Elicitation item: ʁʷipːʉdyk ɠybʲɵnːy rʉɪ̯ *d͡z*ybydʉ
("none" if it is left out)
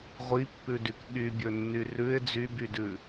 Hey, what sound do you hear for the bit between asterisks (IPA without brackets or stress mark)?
d͡z